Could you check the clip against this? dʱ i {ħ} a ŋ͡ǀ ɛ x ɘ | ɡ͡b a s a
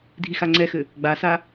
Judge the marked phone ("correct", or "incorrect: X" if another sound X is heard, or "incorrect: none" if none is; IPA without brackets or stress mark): incorrect: x